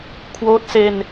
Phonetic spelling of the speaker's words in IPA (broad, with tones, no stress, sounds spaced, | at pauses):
kʰ w oː˦˥ t̚ s e˧ n